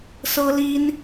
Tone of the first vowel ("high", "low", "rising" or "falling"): high